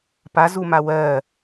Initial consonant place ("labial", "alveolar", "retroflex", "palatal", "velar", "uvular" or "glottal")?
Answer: labial